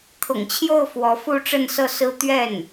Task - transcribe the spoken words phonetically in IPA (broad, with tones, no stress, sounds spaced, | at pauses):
t̪ʰ ʊ̰˨˩ ŋ t͡ɕʰ j o˥˩ ʊ̯ f w ɔ˧˥ f u˥˧ ʈ͡ʂ ə˥˧ n s ɤ˥˩ s ɹ̩˥ t̪ ɥ ɛ˥˩ n